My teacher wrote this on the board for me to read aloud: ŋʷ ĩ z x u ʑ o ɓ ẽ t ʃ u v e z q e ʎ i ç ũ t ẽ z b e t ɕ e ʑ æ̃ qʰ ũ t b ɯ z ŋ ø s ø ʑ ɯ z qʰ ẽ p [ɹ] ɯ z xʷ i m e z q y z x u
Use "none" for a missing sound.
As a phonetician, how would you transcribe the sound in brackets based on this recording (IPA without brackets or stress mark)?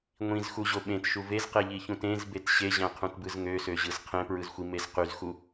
ɹ